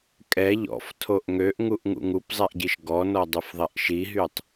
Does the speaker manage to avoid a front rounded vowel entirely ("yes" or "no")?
no